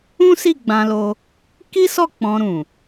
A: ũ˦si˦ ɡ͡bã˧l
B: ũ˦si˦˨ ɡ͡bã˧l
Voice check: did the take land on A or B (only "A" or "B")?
B